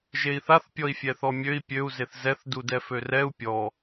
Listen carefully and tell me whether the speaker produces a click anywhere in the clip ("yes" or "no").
no